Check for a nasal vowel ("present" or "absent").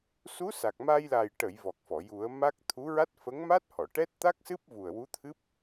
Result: absent